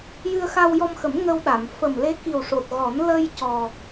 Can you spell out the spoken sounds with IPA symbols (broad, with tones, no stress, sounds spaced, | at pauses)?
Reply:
j ɨ˧ ə̯ x a˧ w j ɔ˧ m x ə˨˩˦ m ŋ ə˧ w ɗ a˨˩˨ m f ə˨˩ m l e˧˥ k i˨˩ w ʂ o˨˩ t̚ ɣ ɔ˨˩˦ n l ə˧ j c ɔ˨˩